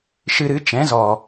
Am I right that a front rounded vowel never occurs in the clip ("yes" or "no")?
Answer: yes